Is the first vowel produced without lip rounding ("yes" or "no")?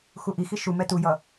no